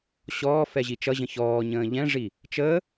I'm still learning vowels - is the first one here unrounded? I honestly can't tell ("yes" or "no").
no